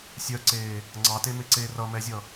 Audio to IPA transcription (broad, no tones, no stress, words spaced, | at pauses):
sʲœǀeː | ŋ͡ǀɑtemeǀeː rʌmɛzʲʌ